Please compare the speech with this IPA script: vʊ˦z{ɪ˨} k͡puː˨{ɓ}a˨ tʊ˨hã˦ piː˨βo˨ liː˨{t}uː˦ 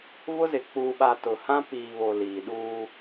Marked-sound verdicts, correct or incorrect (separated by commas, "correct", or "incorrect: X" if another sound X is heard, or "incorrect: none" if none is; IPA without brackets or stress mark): correct, correct, incorrect: ɗ